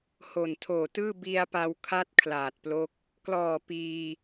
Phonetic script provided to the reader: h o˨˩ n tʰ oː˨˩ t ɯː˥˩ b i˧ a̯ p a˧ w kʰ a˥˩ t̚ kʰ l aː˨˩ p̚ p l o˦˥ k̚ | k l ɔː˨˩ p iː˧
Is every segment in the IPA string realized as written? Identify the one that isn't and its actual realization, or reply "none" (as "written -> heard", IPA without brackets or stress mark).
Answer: p̚ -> t̚